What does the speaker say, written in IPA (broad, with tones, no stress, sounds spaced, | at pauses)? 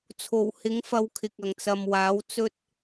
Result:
t͡sʰ o˨˩ w h ɪ˨˥ ŋ f ɐ˨˧ w kʰ ɪ˨ k̚ ɐ˨˩ ŋ t͡s ɐ˨ m w aː˨˥ w t͡s ɵ˥ t̚